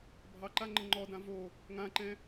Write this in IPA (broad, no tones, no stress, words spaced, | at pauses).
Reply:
bʱɑǃaŋ͡ǃə ŋ͡ǃɔdã vo | ŋãǃɛ̃